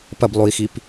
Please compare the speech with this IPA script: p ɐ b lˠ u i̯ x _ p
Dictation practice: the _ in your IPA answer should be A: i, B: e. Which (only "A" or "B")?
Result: A